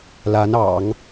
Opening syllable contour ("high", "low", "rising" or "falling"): rising